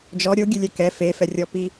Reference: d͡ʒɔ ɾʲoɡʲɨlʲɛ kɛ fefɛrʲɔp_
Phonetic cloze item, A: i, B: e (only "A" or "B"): A